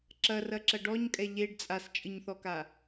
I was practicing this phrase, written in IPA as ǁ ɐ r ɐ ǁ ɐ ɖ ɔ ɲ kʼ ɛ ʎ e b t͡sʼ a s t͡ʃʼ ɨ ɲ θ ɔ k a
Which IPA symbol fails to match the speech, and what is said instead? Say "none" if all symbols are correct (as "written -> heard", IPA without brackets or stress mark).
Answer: b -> ɖ